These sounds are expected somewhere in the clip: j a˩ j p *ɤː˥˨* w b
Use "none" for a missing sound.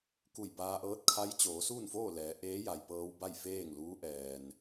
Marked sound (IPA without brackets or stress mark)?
ɤː˧